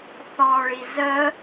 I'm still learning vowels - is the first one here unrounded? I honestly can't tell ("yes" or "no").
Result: no